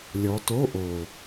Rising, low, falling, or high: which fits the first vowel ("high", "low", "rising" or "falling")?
rising